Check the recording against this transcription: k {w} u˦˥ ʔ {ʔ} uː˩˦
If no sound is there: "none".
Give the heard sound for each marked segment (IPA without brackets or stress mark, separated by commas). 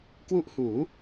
w, h